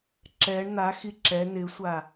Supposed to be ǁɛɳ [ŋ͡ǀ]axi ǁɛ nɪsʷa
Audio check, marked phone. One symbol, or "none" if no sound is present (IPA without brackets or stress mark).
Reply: n̪